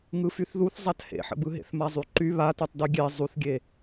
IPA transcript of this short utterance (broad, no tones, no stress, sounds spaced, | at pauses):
ŋ ɯ f y θ ð u θ zˤ a t h ḛ ħ ə̰ b ɯ ɦ ḛ θ m a zˤ y ǃ y β a t u tˤ d y ɡʲ e zˤ u θ ɡʲ e